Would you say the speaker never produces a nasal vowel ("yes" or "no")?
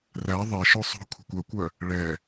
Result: yes